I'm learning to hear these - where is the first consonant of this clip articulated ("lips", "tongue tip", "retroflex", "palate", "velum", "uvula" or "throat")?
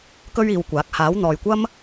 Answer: velum